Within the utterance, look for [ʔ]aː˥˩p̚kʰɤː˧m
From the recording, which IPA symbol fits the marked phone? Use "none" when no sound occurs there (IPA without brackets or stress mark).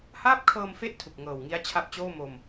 h